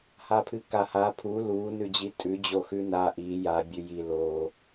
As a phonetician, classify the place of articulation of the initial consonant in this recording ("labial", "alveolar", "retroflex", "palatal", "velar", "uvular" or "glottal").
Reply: glottal